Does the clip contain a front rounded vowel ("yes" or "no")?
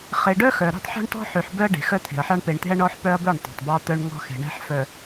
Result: yes